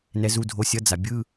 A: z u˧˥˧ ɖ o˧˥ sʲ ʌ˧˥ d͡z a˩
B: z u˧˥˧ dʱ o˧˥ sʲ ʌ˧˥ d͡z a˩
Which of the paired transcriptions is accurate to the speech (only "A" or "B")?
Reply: B